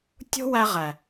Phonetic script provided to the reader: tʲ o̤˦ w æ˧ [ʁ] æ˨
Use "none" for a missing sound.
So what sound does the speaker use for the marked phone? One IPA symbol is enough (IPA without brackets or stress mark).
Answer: ʁ